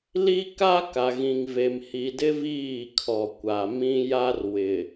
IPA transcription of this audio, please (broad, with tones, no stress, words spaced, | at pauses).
li˦ka˦ ka˨ɣĩ˨ŋve˨m hi˨dɪ˦ viː˦˨kʰɔ˨ kʷa˨mĩ˦ ja˦r wɪ˨